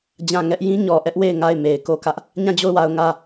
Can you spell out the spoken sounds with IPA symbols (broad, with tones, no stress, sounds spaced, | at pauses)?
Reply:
d͡ʑ ã˦˨ ŋ ɛ˦ ʔ j ĩ˦ ɲ ɔ˨ ʔ ɛ˦ ʔ w e˦˨ ɪ̯ ŋ a˦˨ ɪ̯ m e˨ ɪ̯ k o˦˨ k ä˦ ʔ | ɲ ã˦˨ d͡ʑ o˦˨ ʊ̯ w a˨ ʊ̯ ŋ ä˦˨